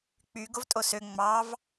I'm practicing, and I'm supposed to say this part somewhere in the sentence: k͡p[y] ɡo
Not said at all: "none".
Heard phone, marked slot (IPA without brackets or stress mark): y